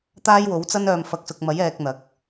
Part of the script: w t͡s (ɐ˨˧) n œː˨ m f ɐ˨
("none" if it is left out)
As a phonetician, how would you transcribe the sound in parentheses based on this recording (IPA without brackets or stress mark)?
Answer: ɐ˥